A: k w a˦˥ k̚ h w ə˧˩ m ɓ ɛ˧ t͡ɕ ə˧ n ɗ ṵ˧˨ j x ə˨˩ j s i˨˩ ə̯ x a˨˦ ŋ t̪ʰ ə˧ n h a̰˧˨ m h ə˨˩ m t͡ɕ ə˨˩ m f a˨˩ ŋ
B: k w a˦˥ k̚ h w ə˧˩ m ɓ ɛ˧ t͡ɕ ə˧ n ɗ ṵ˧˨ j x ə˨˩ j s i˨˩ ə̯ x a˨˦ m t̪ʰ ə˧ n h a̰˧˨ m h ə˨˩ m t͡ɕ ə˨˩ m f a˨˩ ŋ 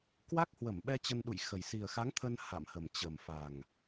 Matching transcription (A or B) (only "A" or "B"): A